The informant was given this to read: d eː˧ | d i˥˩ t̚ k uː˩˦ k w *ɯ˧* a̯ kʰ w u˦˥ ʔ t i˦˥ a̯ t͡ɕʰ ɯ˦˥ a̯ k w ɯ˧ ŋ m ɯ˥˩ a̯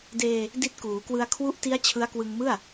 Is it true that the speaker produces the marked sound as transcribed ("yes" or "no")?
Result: yes